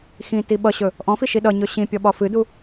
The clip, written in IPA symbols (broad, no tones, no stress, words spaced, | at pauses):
xĩ tiɓʌɕɵ | ʔɔ̃fi ʃiɗʌɲɵ ɕĩ pʲɔɓɒfɨdu